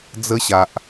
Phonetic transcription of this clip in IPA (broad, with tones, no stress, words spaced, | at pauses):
d͡zə˦ɕa˨ʔ